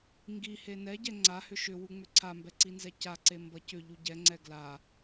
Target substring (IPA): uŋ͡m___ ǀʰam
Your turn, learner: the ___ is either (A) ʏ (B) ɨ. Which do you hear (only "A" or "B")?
A